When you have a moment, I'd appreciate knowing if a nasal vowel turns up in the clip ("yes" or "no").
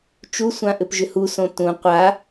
yes